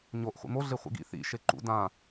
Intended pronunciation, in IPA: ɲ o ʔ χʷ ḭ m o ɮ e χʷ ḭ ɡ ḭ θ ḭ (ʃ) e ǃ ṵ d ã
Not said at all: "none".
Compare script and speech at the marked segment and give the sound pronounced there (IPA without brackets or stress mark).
ʃ